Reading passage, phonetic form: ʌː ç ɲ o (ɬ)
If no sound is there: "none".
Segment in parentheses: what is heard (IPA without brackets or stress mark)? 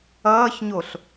ɬ